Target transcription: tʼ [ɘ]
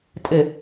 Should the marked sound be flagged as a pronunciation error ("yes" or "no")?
no